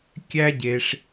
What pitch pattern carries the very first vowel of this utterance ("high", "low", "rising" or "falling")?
high